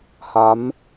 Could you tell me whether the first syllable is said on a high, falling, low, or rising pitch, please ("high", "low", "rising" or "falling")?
rising